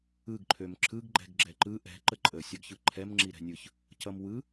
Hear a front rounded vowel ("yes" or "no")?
yes